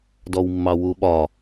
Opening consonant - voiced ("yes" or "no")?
yes